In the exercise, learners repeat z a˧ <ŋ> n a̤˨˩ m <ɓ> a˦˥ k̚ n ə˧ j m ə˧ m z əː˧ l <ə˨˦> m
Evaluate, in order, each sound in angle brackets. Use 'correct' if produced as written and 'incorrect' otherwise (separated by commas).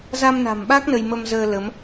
incorrect, correct, correct